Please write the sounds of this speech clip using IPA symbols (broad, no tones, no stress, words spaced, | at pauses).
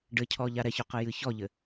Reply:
ɖɘcʰɔ ʎaɾɛçɔqɘ jɨçɔʎɘ